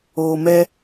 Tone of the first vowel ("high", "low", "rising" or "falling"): low